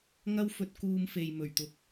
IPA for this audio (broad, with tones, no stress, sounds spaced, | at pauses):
ŋ ɐ˧ w f ɵ˨ t̚ k uː˨ m f e˨ j m ɵ˨˩ ɥ t̪ ʊ˨ k̚